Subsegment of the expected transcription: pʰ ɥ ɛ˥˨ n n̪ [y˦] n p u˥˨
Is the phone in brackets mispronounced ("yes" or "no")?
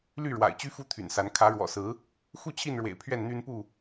no